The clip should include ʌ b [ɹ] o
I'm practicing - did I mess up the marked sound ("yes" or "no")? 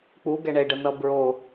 no